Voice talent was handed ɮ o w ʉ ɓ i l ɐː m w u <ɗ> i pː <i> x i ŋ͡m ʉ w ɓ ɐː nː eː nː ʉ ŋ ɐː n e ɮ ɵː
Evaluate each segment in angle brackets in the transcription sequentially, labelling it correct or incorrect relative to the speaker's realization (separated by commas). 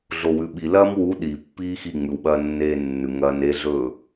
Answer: correct, incorrect